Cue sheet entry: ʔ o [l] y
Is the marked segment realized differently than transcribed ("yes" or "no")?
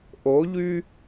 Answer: yes